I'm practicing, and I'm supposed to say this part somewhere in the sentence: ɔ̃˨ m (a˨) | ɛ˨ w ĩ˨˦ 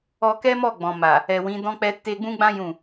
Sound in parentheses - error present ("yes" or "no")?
no